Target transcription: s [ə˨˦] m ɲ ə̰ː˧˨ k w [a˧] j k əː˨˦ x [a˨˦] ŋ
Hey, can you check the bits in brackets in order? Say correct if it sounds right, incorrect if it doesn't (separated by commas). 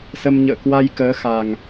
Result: incorrect, correct, incorrect